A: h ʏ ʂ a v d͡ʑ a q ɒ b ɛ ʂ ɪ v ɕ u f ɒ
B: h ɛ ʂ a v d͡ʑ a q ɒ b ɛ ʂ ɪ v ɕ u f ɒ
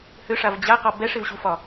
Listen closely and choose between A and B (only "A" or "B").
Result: A